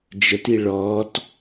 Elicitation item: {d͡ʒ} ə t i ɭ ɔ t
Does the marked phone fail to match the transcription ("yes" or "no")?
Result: no